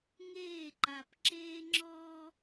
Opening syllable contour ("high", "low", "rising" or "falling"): falling